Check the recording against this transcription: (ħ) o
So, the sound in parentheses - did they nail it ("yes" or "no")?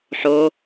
yes